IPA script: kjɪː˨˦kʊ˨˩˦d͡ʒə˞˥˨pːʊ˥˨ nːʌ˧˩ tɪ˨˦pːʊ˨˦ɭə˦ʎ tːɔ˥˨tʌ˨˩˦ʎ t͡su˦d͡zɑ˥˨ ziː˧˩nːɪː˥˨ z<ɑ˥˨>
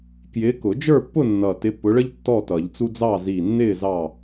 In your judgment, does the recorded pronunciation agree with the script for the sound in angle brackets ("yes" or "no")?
yes